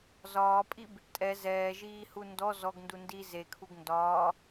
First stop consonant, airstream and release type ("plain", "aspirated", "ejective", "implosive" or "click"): ejective